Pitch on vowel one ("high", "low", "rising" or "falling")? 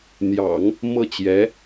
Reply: low